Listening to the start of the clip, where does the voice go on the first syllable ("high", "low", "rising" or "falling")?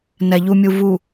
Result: low